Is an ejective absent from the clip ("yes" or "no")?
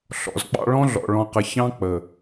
yes